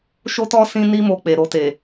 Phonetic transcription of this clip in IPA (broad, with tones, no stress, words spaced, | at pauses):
ʃo˦tɔ˦ sĩ˦ni˦ mo˧k͡pe˨ɾo˧te˨